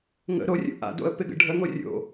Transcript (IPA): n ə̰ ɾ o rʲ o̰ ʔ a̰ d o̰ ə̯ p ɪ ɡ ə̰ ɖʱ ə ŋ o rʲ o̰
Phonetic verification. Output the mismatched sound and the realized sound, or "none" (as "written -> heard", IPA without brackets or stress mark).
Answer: n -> ŋ